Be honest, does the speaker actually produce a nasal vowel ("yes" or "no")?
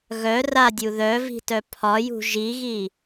no